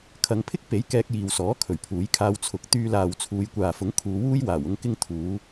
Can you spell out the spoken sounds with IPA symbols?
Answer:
kʰ ɐ˨˧ ŋ pʰ ɪ˥ k̚ p e˨˥ j k ɛː˧ k̚ j iː˨ w s ɔː˨˥ kʰ ɵ˨˩ ɥ pʰ uː˨˥ j kʰ aː˧ w t͡sʰ ʊ˨˥ k̚ t̪ yː˧ l aː˨ w t͡sʰ uː˨˧ j kʷ aː˨ f ʊ˨˥ ŋ kʰ uː˨˧ w uː˥ j w aː˨˩ w ʊ˥ ŋ k ɪ˥ ŋ t̪ʰ uː˨˧

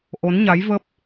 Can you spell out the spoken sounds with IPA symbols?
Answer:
ʔ o˨˦ n ɲ a˨˦ j v ə˦˥ p̚

